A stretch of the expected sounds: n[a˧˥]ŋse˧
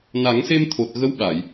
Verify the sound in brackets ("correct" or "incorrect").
incorrect